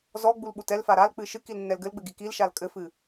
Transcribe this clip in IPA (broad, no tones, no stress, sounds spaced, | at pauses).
z ɔ ɡ͡b u l ɓ u t ɛ l f a ɾ a l k͡p ɨ ʃ ɨ k i l nː ɛ l ɡ ɘ l ɡ͡b ɘ ɡ i k i l ʃ a l kʼ ɘ f ɨ